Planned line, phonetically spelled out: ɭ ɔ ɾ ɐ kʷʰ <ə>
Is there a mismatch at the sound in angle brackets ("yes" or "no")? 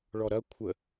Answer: no